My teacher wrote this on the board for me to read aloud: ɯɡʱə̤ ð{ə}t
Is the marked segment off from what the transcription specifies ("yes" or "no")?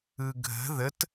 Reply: no